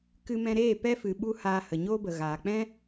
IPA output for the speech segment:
k ɨ˧ m ɛ̃˧ ɾ eː˦˨ p ɛ˧ f ɨ˨ ɓ u˦ h aː˧ h ə˨ ɲ oː˦ b ə˨ ɣ aː˨ k͡p ɛ̃˦

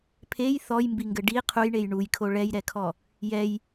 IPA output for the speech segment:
pʰ e j θ ɔ j m b i ŋ ɡ ɘ ɖ i qʰ u j ɳ e j ɳ u j kʰ o ɭ ɛ j ɾ ɛ kʰ ɔ | j ɛ j

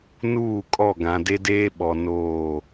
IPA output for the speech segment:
n uː˦˨ kʼ ɔ˦˨ ɡ ã˨ d e˦ d eː˦ ɓ ɔ˨ n oː˦˨

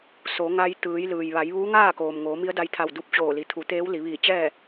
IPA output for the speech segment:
s o˩˧ ŋ a˧ j t̪ ɯː˩˧ j l ɯː˩ j ʋ a˩˧ j ʋ uː˧˥ ŋ aː˥˨ k oː˩ m ŋ oː˩˧ m i˧˥ ə̯ d a˧ j t̪ʰ a˧˩ w d u˧ p̚ t͡ɕ oː˧˩ l i˩ t̪ʰ u˩˧ t̪ eː˧˥ w l i˩˧ ʋ iː˧˩ t͡ɕ ɛː˥˨

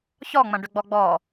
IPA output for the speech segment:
ç ɔ ŋ͡m ɐ̃ ɖ ʏ ɡ͡b ɔ ɡ͡b ɔ

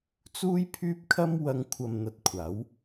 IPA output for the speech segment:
t͡s uː˥ j pʰ yː˥ p̚ kʰ ɐ˥ m w ɐ˧ ŋ kʷʰ ɐ˨ m n̪ ɐ˨ t̚ kʷʰ aː˨˥ w

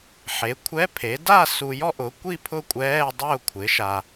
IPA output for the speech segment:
ħ e˩˥ kʷʰ ɛ˧˥˧ pʰ e˩˥ d a˥˨ s u˨ j ɔ˥˨ ʔ ʊ˩˥ kʷ i˥˨ pʰ ʊ˥˨ kʷʼ ɛː˧˥˧ dˤ ʊː˥˨ kʷʰ ɪ˩˥ ʃ a˨

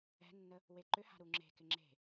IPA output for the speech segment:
ɛ̤ nː ə | w e ǃ ʏ h a̤ ɾ u ŋ͡ǁ e̤ k ɪ ŋ͡ǁ e̤

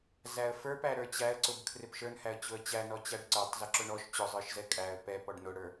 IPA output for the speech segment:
z æ ə̯ f ə˞ p æ ɾ ə˞ t͡ɕ æ ə̯ ǀ ʊ b kʰ r ɪ p ʃ ə˞ n h æ ə̯ t͡ɕ ʊ ə̯ t͡ɕ æ n ɔ t͡ɕ æ ɖ ǀ ə˞ tˤ z ɪ ǁ ʊ ɳ ɔ ʃ t͡ɕ ʊ zˤ ə˞ ʃ z ɛ kʼ æ ə̯ p ɛ p ɔ ɖ n ʊ ɽ ə˞

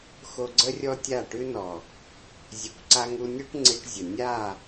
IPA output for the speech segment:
x o˧ ɡ͡ǀ ə˦ rʲ ɔ˦ tʲ a˦˨ ʈ ʉ˦ n ɔ˨ | zʲ ʉ˨˦ kʷ ǀ a˧ ŋ u˧ nʲ u˦ ʈ ŋ͡ǀ i˧ ʈ zʲ ə˨ nʲ a˦˨

